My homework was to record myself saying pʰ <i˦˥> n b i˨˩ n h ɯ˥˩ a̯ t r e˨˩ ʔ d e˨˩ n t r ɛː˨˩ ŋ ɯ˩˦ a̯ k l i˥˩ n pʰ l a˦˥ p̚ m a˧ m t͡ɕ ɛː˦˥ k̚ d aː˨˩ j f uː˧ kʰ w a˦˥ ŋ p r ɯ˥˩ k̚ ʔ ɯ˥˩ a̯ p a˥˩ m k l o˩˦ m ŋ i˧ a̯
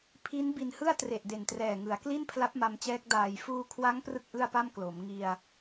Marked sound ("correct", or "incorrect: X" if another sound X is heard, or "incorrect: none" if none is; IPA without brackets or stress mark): correct